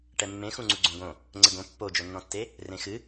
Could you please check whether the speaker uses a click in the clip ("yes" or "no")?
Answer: yes